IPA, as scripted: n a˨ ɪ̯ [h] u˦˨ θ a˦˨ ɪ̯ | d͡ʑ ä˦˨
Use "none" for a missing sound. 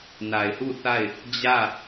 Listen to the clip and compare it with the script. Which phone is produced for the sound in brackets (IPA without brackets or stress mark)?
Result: h